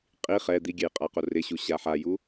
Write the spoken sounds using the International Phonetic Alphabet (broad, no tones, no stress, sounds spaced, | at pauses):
qʼ i χ ɛ d̪ i ɡʲ ɛ j qʼ a q o r ɪ ɕ u ɕ a ħ a j u